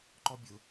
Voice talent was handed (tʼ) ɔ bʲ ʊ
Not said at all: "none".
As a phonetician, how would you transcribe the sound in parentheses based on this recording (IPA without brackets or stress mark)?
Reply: ǃ